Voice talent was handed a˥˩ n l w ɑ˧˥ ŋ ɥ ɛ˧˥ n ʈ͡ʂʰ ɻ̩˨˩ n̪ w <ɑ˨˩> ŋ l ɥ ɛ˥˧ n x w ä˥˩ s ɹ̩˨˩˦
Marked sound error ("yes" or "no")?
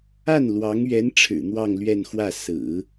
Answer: yes